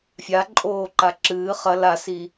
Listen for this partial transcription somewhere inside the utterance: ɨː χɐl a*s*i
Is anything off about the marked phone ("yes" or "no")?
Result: no